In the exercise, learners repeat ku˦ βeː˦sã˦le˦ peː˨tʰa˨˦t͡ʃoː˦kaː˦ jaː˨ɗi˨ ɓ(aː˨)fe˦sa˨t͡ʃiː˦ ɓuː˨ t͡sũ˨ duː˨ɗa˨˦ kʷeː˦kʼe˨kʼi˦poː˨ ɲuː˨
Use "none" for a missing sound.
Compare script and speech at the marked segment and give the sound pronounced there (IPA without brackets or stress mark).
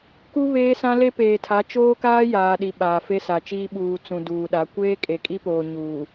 aː˨